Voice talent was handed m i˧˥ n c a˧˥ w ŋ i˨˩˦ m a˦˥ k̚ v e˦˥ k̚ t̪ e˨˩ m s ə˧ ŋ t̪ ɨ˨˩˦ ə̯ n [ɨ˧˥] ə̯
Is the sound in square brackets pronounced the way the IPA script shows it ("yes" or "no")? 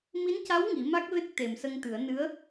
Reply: yes